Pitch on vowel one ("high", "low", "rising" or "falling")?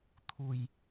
low